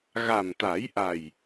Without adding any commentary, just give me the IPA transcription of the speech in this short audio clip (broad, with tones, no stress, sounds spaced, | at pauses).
ɣ a˨˩ m t̪ a˨˩˦ j ʔ a˨˩ j